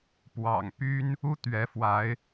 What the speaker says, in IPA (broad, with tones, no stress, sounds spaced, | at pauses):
p w ɑ̰˨˩ ŋ p y˦ n | u˦ t̪ ɥ ɛ˨˦ f w a˨˦ ɪ̯